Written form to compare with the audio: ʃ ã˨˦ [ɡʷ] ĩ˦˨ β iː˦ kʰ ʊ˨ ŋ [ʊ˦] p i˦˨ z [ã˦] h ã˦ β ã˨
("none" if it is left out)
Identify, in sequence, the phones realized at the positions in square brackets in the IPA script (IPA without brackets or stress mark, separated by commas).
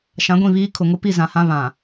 ɡʷ, ʊ˦, ã˨